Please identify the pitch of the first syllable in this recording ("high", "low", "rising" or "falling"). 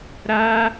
high